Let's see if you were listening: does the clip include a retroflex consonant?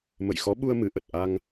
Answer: no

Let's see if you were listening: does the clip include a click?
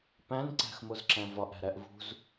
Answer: yes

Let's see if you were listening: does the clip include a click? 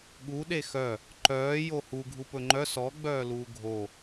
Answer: yes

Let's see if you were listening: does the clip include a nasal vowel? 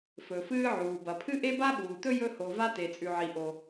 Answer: no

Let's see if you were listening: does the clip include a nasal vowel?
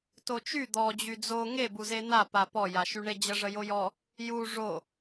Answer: no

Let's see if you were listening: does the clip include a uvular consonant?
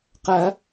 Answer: yes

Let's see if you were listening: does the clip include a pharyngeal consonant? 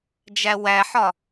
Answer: yes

